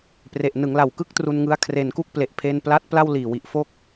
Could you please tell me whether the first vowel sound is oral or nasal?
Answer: oral